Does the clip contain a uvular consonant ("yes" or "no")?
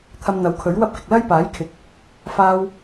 no